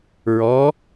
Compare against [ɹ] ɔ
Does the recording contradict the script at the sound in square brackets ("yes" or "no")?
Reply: no